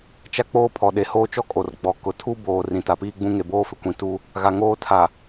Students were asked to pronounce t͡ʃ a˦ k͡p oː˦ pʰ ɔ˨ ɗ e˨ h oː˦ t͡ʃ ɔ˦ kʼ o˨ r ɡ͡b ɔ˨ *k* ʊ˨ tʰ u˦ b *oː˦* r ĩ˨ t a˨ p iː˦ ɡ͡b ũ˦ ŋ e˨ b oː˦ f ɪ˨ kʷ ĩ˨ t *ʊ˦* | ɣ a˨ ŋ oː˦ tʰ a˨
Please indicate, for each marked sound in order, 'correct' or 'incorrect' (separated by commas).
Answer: correct, incorrect, incorrect